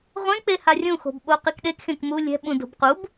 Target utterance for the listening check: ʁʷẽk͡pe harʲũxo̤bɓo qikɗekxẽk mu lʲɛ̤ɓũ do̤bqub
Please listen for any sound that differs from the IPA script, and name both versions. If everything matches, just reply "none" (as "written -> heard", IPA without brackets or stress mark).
none